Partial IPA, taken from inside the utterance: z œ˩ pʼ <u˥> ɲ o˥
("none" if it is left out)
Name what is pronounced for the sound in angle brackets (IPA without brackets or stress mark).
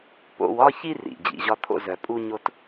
u˥